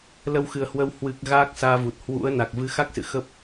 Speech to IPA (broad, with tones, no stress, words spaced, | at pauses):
lə˧wxɨ˨˩ə̯hwə˧w hwɨ˨˩k̚ ɣaː˦˥k̚saː˧vu˨˩t̚ hwṵ˧˥ə̯na˨˩k̚ vɨ˨˦xa˦˥k̚sɨ̰˧˨ xə˦˥p̚